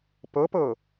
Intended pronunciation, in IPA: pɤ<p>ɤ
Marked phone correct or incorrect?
correct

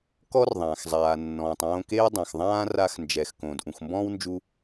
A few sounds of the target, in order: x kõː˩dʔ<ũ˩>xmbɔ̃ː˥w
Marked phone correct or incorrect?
correct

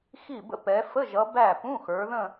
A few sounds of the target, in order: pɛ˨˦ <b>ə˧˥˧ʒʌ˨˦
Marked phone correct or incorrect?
incorrect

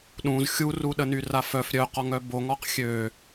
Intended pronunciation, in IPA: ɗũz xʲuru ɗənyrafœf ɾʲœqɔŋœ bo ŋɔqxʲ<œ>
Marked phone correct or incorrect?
incorrect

